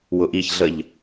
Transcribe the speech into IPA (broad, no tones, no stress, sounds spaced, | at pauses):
w ʊ ʔ i ç ɮ ə ʎ